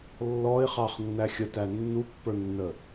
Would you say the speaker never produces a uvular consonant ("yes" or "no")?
no